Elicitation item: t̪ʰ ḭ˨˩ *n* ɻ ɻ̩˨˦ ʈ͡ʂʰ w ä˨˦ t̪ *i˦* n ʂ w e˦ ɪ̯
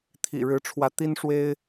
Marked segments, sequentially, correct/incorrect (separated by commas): incorrect, correct